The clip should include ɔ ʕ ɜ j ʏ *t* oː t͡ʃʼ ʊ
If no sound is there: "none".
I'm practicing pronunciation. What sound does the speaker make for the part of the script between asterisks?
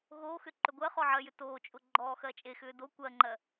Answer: t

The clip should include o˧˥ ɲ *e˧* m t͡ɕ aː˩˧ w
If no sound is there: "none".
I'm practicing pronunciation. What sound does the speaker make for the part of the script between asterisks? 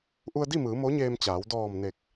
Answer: eː˧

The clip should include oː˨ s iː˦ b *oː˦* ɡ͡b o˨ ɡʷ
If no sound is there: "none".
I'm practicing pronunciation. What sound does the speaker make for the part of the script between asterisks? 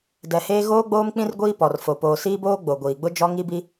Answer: oː˦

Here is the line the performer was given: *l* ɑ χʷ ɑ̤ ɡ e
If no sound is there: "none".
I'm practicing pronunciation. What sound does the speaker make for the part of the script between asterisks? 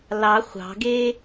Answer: l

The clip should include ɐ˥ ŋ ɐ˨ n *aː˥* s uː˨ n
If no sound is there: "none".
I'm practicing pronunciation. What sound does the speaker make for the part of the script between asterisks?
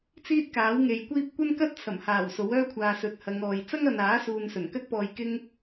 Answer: aː˨˥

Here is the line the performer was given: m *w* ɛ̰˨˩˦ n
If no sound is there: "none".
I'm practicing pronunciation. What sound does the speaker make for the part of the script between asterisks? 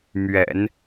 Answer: ɥ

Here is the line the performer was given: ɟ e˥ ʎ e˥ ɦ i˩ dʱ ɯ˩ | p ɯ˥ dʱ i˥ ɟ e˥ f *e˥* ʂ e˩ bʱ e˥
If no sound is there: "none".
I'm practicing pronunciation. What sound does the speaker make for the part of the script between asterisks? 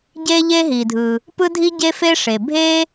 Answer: e˥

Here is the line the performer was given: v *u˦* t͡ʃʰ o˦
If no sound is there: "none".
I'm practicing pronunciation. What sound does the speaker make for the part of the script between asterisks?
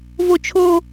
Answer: o˦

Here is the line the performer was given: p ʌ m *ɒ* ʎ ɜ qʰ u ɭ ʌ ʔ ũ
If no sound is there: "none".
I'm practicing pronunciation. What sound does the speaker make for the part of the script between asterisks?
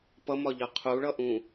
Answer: ɒ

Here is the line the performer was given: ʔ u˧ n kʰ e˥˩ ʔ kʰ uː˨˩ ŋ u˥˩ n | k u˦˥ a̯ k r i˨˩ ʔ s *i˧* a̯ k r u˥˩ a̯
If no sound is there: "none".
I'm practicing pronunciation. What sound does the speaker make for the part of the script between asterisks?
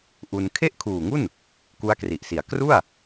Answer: i˩˦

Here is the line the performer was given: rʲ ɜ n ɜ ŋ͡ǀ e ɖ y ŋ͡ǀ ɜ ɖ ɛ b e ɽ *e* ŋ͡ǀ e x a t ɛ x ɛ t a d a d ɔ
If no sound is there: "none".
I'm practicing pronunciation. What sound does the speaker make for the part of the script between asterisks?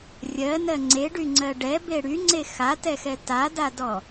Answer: y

